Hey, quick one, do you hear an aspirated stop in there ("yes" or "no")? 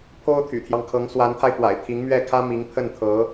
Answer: yes